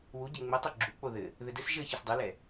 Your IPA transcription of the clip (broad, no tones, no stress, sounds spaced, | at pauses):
w u ɟ ə ŋ͡m ə tˤ o ɡ͡ǁ u k͡p o ð ɘ | ð ɘ d ɘ s ʒ ɘ ç ɘ s dˤ u l ɛ